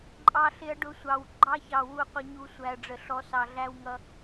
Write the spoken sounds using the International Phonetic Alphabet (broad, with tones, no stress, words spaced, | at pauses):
ǃʼɑ˧ɬɪ˧ɐ̯ ɖʊ˧sʷɑ˨w ɡ͡ǃɑ˧çɑ˨ wu˧qʷə˧ɲu˧ sʷæ˨ɐ̯ɖ͡ʐə˨ɬɔ˨˦ sɑ˨ɮæ˧wŋʌ˧